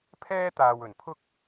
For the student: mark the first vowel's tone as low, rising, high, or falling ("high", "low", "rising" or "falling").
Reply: high